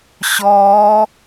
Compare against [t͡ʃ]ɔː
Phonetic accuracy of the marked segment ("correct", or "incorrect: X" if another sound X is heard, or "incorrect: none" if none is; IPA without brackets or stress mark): incorrect: ɕ